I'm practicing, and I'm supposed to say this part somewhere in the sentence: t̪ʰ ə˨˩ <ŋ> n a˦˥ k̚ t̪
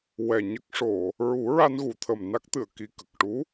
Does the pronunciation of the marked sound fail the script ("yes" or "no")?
yes